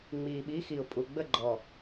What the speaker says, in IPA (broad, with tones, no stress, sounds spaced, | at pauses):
ŋ͡m iː˨ ɓ i˨˦ x i˨ ʊ̯ pʼ u˨ ɡ͡b ə˦˨ ɡ͡ǃ ɔ˨